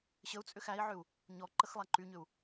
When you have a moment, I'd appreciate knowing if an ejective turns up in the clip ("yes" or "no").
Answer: yes